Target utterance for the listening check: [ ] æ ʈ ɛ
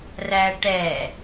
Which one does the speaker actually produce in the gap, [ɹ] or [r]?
r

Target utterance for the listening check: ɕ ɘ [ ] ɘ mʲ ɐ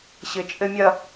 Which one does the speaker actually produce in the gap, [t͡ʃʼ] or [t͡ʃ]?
t͡ʃʼ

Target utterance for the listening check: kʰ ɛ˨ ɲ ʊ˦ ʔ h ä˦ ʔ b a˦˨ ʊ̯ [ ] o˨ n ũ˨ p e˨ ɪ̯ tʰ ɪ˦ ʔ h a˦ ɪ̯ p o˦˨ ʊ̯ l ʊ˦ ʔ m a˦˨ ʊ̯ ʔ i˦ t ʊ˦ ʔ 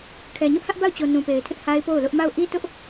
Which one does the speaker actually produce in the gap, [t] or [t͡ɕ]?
t͡ɕ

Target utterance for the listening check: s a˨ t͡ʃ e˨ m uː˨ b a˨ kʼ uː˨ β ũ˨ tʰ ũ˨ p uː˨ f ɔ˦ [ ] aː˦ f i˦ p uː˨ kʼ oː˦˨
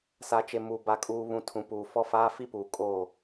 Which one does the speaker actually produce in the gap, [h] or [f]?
f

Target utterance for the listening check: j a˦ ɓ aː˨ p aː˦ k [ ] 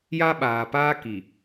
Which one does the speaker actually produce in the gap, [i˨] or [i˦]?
i˨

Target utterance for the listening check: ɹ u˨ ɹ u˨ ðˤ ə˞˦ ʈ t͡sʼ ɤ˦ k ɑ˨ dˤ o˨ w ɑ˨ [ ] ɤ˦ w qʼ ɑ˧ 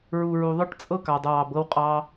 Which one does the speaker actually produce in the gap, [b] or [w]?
b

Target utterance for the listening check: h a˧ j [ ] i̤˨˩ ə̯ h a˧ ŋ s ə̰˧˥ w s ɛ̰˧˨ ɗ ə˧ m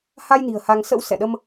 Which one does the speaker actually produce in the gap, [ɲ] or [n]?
n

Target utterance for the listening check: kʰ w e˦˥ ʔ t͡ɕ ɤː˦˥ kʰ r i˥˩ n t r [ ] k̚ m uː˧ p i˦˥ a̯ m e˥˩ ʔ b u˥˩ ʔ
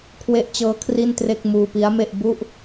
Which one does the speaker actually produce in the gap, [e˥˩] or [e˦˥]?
e˥˩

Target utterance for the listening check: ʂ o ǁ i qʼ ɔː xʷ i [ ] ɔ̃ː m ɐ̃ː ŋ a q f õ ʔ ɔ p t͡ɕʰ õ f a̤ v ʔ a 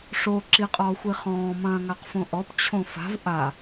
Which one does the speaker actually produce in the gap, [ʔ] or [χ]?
χ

